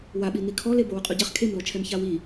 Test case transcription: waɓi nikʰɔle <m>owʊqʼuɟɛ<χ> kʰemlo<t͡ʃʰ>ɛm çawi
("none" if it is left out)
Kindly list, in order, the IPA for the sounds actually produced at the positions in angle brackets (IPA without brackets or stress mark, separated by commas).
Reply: b, χ, t͡ʃʰ